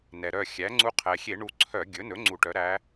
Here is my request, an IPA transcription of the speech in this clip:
nɛ˩ɾœ˧˩xʲæ˩˥ŋ͡ǀu˧˥ qʰɛ˩xʲe˧˩˧ ɳu˧˩ǀʰœ˧˩˧ɡʲɵ˩˥nɵ˩˥ ŋ͡ǀu˧˩˧ʈœ˩˥ɾæ˧˥

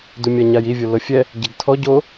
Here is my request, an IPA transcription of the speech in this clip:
dumʲaɲaji vʲolɤfʲɛ | ɟeɡtʰɔ ɟo

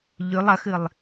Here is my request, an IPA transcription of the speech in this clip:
ʎʉlˠ ɐxɨlˠ

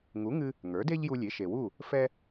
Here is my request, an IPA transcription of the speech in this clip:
ŋu˩˥ŋɨ˧ | ŋə˞˩˥de˥ʎju˧lʲe˩˥ ʃe˩wu˥˩ | fɛ˥

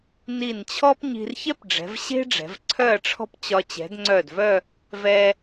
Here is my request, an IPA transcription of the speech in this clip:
ni˧˩nt͡ɕʰɔ˥pɲi̤˧r çɛ˥pɖ͡ʐɛ̤˩˧vɕe̤˥ ɖ͡ʐɛ̤˩˧vǀʰœ˥˧ɐ̯ʈ͡ʂʰɔ̤˥pt͡ɕɒ˧ t͡ɕɛ̤˩˧dŋ͡ǀœ˧˩dvœ˥˧ | vɛ˧

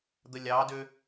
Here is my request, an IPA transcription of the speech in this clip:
d̪əlʲɑdø

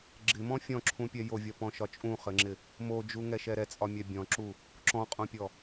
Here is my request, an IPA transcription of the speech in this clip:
ɡ͡ǁɪmɔ̃ fʲɔ̃ǁʰũpʲɛ jovʲɒpɔ̃ʃɒ t͡ʃʼũχɘŋ͡ǁɪ | mod͡ʒuŋɛʃɛ ɾɛt͡sʼɒmʲɛ bʲɔ̃ǁu | ǁɔ̃qʼõpʲɔ

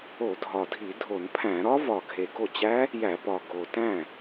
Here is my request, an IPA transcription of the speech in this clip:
o˧˩˧dʱɒ˨˩dʱi˧˩˧ dʱo˧˩˧npʰæ̃˧˩˧ ɾɒ˦˥vɒ˨˩ ɡʱe˨˩ɡo˥˩t͡ɕæ˦˥ | jæ˧˩˧pɒ˨˩ ɡo˨˩tæ̃˥˩

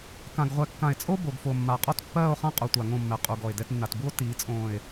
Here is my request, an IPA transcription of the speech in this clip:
kã˨ɡ ʁʷɛ˨kːã˨e̯t͡sʼo˦ bo˨ɡfo˨mːa˨ qʼɔ˦tpːɜː˦˨o̯χã˦ qʼo˨tʷa˨ ŋõ˦˨mːɛ˨ qʼu˨ ɡɔ˨e̯dɛ˦t nːa˨tbu˦o̯ tiː˨˦t͡sʼõː˨e̯

